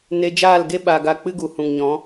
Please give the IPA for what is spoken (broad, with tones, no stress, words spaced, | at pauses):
ne˧d͡ʒaː˦˨lɡe˦ ɓa˨ɡa˨ k͡pɨ˦ɡu˨hũ˨ŋɲɔ̃˨˦